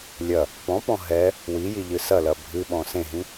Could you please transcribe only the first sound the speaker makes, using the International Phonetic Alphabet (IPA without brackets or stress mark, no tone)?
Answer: lʲ